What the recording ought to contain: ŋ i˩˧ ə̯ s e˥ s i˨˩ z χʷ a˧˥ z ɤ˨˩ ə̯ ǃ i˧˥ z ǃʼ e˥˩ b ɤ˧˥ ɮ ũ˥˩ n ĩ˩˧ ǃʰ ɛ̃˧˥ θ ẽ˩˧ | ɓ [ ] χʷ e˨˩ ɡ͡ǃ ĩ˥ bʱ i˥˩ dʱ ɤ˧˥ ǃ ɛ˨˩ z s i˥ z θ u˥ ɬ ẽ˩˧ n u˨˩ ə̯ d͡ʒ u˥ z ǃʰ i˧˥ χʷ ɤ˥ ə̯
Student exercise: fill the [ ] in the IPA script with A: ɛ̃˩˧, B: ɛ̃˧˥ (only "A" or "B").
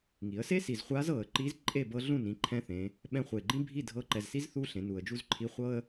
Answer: B